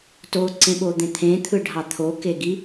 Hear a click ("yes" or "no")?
yes